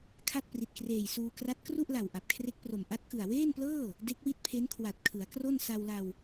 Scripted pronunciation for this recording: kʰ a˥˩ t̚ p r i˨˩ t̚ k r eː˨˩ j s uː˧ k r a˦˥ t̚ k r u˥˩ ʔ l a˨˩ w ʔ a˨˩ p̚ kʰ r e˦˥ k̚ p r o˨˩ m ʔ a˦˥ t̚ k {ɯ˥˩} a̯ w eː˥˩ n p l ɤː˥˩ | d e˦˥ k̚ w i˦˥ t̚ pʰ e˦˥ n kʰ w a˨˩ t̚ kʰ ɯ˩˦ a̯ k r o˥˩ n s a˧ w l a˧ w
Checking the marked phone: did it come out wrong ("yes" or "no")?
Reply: yes